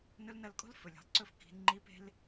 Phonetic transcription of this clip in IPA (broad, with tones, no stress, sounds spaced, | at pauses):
n ɵ˧˥ l n ɐ˧ l kʼ o̤˥ l f ɵ˩ lʲ e̤˩ lˠ ǀ ɵ˧ f k i̤˩˧ n ŋ͡ǃ i˧˥ p e̤˥ l